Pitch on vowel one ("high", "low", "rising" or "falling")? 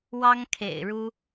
high